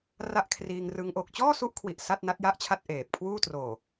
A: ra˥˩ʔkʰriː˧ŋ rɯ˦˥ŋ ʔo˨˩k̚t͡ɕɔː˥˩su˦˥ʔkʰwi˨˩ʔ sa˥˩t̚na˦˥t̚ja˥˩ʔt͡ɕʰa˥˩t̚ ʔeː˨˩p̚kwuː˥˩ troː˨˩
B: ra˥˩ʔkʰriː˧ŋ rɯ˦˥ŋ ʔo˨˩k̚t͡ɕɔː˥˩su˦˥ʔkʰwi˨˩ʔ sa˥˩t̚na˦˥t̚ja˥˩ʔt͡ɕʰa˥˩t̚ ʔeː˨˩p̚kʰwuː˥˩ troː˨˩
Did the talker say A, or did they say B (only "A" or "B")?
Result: B